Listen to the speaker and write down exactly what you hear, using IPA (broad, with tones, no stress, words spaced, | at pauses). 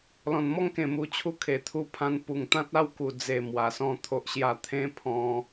lɔ̃˨˩nmɔ˥˧ŋkẽ˨˩ mu˨˩t͡ɕʰu˧ kʰe˨˩t̪ʰu˧ pʰã˧n pu˨˩ŋt̪ã˦t̚a˥˧w ku˨˩d͡ze˨˩ mwa˨˩sɔ̃˥˧t̪ʰo˦ʔɕja˥˧ t̪ʰẽ˦ pʰɔ̃˧